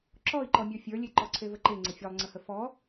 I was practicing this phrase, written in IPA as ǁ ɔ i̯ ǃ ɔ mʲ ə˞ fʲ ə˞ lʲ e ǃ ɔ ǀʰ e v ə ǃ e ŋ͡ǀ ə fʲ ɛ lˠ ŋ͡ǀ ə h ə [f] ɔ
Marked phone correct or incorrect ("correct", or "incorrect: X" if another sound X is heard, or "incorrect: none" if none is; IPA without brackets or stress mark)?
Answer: correct